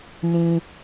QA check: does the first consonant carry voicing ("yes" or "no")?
yes